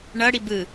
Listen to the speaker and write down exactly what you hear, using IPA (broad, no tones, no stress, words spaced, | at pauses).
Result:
ɳʌɽi bɯ